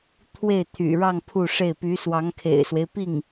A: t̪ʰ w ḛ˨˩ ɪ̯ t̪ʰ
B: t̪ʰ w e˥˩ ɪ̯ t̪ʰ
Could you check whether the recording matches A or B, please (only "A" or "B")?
B